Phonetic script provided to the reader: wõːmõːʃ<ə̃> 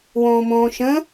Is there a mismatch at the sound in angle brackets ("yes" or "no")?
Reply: no